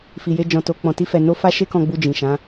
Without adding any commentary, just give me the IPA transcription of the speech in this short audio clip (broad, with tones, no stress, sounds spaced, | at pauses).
f i˧ j e˦ d͡ʒ ɔ̃˧ t o˧ k͡p ɔ̃˧ t i˦ f ɛ˧ n o˦ f a˦ ʃ e˦ k ɔ̃˧ ɡ͡b u˧ d͡ʒ ĩ˨ ʃ ã˨˦